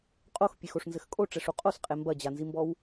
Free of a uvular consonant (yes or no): no